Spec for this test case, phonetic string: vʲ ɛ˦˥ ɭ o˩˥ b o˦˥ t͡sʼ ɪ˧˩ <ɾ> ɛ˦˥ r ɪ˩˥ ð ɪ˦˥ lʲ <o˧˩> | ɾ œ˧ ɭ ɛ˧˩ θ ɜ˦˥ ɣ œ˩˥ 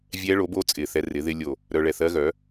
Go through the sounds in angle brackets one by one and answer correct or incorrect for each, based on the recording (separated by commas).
incorrect, correct